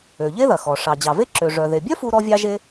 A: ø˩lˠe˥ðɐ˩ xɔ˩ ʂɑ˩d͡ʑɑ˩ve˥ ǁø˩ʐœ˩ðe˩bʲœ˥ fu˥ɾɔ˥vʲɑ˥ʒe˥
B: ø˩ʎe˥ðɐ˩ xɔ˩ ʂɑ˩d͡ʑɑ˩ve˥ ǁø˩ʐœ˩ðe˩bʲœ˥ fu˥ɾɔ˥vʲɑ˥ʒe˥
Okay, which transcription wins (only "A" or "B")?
B